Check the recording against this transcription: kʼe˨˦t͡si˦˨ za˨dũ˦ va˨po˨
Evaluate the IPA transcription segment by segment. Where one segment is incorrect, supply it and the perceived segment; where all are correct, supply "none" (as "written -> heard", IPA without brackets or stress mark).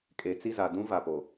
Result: none